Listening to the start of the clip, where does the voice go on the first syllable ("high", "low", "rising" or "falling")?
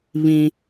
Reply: high